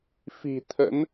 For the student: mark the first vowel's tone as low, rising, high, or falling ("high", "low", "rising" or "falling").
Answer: low